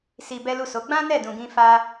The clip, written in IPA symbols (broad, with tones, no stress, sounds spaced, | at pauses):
s i˧ b ɛ˦ l u˦˨ s o˨˦ ɡ͡b ã˦ n ɛ˦˨ d ũ˧ ɡ ĩ˦ f a˦